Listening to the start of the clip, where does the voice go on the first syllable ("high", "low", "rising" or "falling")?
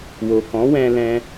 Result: low